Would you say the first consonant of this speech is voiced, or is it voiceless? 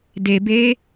voiced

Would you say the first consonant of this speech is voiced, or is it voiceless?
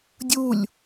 voiced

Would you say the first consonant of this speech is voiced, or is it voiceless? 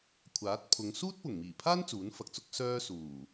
voiceless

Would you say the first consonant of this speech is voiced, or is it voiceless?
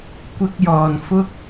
voiceless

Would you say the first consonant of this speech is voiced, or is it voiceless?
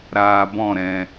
voiced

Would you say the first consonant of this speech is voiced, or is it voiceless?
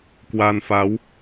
voiceless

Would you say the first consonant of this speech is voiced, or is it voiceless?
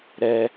voiced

